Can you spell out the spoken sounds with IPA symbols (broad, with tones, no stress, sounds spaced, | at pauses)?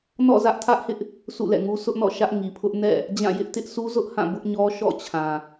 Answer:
n ɔ̰˦˨ z ä˦ ʔ tʰ ä˦ ʔ h ɪ˦ ʔ | s ṵ˦˨ l ɛ̰˦˨ ŋ u˦ sʰ ʊ˦ ʔ n ɔ̰˦˨ ʃ ä˦ ʔ ŋ i˨ pʰ ʊ˦ ʔ n ɛ̰˦˨ | d͡ʑ ã˦˨ j ɪ˦ ʔ t ɪ˦ ʔ sʰ u˦ z ʊ˦ ʔ h ã˦˨ b ʊ˦ ʔ ɲ ɔ˦ ʃ ɔ̰˦˨ t͡ɕʰ ã˨